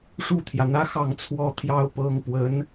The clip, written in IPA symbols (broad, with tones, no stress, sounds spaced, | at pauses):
ʂ u˥˩ t̪ʰ j ä˩ n̪ ä˥ x ɑ˥˩ ŋ t͡sʰ w ɔ˥ t̪ʰ j ɑ˥ ʊ̯ p ɤ˥ ŋ p w ə˧˥ n